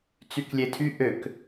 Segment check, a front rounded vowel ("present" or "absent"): present